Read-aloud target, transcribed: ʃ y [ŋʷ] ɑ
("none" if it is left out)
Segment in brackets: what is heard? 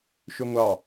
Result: ŋʷ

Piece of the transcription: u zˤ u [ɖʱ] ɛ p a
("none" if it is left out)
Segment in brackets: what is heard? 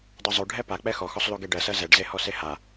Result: ɖʱ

